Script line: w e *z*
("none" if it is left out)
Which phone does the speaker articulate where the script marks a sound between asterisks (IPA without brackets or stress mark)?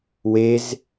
z